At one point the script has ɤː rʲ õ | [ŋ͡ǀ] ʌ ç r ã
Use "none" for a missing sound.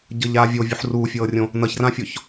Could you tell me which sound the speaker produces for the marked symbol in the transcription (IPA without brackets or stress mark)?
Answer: n